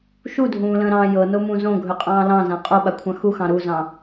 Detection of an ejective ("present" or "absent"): present